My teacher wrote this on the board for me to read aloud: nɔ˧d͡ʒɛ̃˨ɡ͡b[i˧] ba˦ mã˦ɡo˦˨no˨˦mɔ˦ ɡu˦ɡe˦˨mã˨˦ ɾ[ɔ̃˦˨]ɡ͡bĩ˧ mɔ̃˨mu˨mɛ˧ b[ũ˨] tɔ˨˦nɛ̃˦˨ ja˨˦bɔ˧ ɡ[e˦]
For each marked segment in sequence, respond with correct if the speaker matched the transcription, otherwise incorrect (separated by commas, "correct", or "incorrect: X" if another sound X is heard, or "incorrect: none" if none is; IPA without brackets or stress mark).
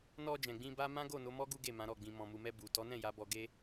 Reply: incorrect: ĩ˧, incorrect: ɔ˦˨, incorrect: u˨, correct